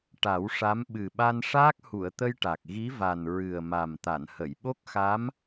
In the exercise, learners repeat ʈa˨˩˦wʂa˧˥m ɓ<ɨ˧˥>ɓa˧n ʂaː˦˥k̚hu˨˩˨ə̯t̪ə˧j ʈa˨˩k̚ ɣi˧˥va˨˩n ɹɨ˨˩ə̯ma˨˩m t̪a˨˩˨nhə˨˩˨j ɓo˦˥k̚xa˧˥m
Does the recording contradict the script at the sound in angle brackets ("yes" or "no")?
yes